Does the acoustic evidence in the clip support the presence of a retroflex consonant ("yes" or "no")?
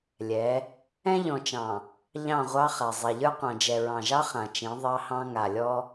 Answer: no